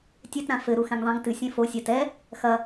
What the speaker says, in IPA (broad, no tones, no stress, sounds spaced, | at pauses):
tʲ ɛ t ɾ ã f ɘ ɾ u x ɛ̃ ŋ ðˤ ĩ ŋ t ɨ sʲ ɛ̃ f o sʲ a t ɛ | x ɐ